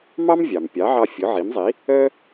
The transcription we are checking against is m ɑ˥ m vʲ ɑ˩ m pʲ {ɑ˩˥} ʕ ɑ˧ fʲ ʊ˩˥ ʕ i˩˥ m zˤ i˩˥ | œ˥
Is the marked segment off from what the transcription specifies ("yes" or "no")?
no